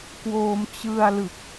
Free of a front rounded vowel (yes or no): yes